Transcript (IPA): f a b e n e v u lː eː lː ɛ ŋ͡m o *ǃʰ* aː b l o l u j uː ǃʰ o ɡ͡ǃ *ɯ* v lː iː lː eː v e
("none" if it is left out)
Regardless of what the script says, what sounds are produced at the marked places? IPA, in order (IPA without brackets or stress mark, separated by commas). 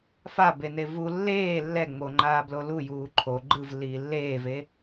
ŋ͡ǃ, ɯ